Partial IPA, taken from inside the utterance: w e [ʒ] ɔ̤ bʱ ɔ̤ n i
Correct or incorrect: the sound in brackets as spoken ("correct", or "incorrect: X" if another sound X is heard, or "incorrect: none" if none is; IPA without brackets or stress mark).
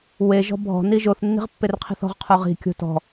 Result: correct